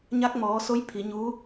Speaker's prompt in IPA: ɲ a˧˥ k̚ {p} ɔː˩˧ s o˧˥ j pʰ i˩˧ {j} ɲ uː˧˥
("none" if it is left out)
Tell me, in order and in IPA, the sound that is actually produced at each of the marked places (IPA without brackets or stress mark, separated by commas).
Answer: m, none